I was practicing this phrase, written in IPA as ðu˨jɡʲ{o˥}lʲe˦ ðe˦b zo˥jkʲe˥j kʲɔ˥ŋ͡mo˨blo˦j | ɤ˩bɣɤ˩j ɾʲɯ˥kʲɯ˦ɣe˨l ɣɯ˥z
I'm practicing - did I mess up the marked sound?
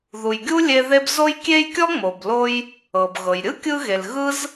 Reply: yes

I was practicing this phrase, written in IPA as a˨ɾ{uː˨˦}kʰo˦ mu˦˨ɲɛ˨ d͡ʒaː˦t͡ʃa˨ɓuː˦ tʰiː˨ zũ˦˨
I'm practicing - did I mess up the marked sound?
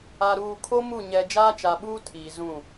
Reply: yes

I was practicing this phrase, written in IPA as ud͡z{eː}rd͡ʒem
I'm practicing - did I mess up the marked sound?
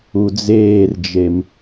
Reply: no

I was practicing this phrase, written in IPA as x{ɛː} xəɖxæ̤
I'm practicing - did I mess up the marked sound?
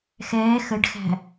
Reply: no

